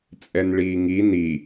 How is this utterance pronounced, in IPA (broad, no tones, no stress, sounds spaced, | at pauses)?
t͡sʼ ɛ n ɭ iː ŋ i n i